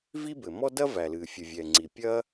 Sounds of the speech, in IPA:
v i˥ b ɘ˩ m ɔ˥ d ɐ˥ v æ˩ l ɨː˩ fʲ ɨ˩ vʲ ɛ˩ ŋ͡ǀ i˩ pʲ ɐː˥

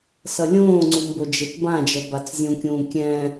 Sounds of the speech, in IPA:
s ʌ lʲ õː ŋ͡ǀ u m b o d͡ʒ e t b ã d͡ʒ ʌ b a t͡s zʲ ũ kʲ ũː kʲ ɛ̃

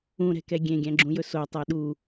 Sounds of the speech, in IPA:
ũ ɾ ɛ̤ k ɛ ɡʲ ẽ ɡʲ æ̃ ɡ͡ǁ ũ j ɵ s o tˤ ɛ ɗ u

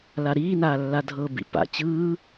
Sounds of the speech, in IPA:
l a ɾ iː n aː lː a dʱ ɤ b ḭ p a̰ t͡ɕ ɯː

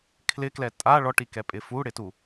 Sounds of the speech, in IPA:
kʰ l ɪ k l ɛ tʼ a ɭ ɔ ʈ i k ɛ pʼ ɪ f u ɽ ɪ t u

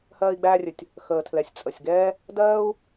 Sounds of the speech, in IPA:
h ɜː˧ i̯ ɡ͡b æː˧ rʲ ɘ˩ tʲ | x əː˩ tʰ l ɛ˩ sʲ t͡sʼ ə˩ sʲ ɡ ɛː˥ | d ɜː˥ u̯

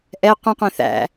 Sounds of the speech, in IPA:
ʔ ɛ qʷ ĩ qʷ ẽ θ æ̰

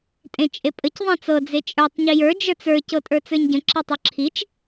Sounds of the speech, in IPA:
tʼ ẽ t͡ʃʼ e pʼ ə c ðˤ ẽ t͡s ɤ d͡z e t͡ʃʼ ə˞ tˤ ɲ i j ə˞ d͡ʒ ə˞ t͡s ə˞ c ɤ tʼ ə˞ t͡s ə˞ ɲ ɟ ə̃ ǁ i tˤ ə˞ ǁʰ i t͡ʃ

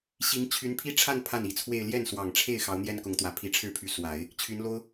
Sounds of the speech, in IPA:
ɕ i˧˥ ŋ t͡ɕʰ y˧˥ n pʰ i˥ ʈ͡ʂʰ a˥˧ n pʰ a˥˩ n i˨˩ t͡sʰ w e˥˧ ɪ̯ l j ɛ˥˩ n s w ɑ˨˩ ŋ ʈ͡ʂʰ e˥˩ ɪ̯ x ɑ˧˥ ʊ̯ n̪ j ɛ˥ n k ʊ˧˥ ŋ t̪ w ä˨˩ pʰ i˧˥ ʈ͡ʂʰ ɻ̩˥˩ pʰ y˧˥ s w a˨˩˦ ɪ̯ | t͡ɕʰ y˧˥ n l o˥ ʊ̯

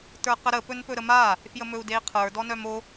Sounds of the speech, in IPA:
t ə˞ q ə ɾ ə p ɵ n p ɵ ɾ ə m a | f j ə m ɵ u̯ d e i̯ qʰ ə˞ d ɔ n œ m o

